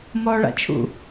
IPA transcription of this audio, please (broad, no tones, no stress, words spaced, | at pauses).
mɔːɭa̰t͡ʃʰṵ